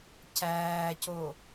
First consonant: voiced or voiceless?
voiceless